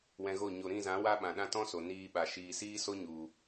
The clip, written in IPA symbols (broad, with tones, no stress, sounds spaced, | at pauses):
w ɛ̃˧ ɣ o˦˨ ɲ o˨ ɾ ĩ˦˨ z ã˨˦ w a˦ ɓ ã˨ ɗ ã˦ t ɔ̃˦ s o˨ n iː˧ ɓ a˨ ʃ iː˨ s iː˦ s o˦ ɲ u˨